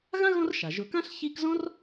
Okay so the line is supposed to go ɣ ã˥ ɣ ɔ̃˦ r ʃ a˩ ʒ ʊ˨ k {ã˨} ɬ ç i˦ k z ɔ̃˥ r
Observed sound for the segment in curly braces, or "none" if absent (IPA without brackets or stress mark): ã˥